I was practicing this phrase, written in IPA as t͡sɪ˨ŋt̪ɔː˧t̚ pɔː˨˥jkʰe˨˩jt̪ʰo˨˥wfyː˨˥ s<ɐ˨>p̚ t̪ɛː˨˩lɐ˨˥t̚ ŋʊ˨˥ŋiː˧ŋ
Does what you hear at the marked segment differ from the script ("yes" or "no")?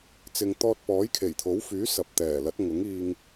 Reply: no